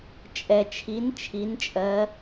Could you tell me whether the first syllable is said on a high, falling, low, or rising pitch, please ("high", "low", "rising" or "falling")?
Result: low